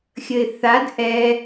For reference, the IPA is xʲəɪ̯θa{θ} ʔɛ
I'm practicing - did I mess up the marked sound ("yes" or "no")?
yes